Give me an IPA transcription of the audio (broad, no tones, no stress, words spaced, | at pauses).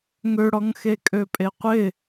ŋøɽɔŋ xekʼøpʼeqʷɪ